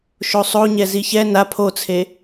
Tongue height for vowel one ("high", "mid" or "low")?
mid